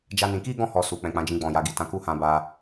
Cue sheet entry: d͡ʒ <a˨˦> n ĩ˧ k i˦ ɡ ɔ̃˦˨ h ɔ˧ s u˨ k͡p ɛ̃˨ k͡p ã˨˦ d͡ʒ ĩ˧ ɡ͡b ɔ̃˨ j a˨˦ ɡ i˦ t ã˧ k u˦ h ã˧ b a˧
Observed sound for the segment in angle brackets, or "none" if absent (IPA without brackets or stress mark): a˦